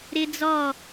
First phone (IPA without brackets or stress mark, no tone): ɾ